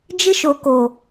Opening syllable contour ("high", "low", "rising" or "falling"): high